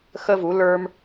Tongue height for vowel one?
mid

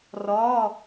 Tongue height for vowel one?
low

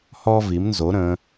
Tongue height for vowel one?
mid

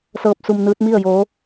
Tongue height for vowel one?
mid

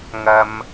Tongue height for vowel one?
low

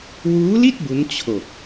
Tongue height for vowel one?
high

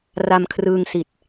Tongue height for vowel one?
low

